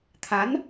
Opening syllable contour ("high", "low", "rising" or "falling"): rising